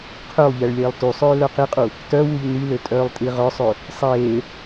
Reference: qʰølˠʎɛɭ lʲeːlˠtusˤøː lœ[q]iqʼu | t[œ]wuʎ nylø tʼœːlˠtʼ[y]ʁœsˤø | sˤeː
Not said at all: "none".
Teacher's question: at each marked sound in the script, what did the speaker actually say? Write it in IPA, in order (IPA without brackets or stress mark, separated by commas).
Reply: q, œ, i